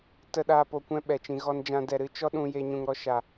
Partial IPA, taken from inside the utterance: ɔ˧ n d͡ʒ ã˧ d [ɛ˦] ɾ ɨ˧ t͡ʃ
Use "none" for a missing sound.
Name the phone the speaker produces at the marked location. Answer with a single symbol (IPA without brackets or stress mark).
ɛ˨